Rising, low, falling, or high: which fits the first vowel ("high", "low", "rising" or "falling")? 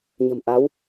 low